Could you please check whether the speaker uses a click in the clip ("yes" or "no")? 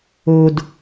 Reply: no